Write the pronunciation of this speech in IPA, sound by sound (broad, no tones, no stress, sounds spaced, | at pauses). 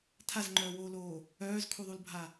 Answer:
tʰ a z ŋ͡ǃ œː w oː l oː | œː z kʰ u ðˤ u l bʱ a